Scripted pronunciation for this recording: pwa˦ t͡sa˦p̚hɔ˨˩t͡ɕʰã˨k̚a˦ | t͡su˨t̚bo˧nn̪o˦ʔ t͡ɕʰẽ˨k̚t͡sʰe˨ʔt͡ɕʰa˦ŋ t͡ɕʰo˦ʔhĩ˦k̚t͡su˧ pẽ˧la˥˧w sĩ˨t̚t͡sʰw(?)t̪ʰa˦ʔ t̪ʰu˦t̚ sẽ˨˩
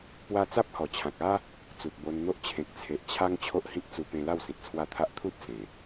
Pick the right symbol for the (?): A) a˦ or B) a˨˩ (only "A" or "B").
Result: A